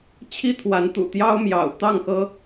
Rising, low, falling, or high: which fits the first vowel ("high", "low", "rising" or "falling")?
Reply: high